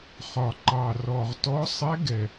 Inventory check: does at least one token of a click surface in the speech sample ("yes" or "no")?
yes